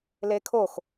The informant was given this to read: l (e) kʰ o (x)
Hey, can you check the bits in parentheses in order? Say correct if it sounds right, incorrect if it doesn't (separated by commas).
correct, correct